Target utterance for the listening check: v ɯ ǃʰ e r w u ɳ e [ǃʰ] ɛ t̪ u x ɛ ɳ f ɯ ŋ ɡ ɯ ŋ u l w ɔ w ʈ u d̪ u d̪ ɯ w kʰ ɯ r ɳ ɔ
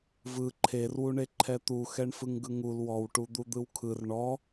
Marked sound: correct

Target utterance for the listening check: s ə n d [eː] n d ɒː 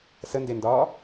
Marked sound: incorrect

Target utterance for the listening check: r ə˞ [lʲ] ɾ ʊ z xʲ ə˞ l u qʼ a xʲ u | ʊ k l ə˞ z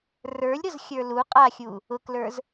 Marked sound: correct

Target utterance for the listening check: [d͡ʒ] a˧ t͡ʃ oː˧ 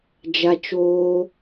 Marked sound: correct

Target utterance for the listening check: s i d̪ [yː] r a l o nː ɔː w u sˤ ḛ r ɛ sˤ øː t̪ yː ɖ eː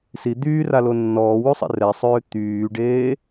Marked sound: correct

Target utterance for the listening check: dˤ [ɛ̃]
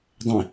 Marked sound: correct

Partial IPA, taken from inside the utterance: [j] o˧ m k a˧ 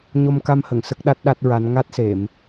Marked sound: incorrect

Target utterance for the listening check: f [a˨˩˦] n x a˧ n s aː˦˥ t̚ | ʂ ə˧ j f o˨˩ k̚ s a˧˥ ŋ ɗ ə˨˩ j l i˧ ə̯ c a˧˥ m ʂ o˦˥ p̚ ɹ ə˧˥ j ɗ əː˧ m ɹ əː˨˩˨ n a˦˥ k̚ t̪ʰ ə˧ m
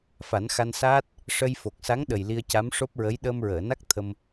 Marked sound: correct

